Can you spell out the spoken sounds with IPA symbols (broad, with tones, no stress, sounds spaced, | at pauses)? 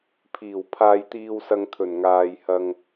pʰ iː˨˩ w pʰ aː˧ j t̪ iː˧ w s ɐ˧ ŋ t̪ʰ ɵ˨˩ n ŋ aː˧ j h ɐ˧ ŋ